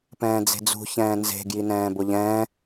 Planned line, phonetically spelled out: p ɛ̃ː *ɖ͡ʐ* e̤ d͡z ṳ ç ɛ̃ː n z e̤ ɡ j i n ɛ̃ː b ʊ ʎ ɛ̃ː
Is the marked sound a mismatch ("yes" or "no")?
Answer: yes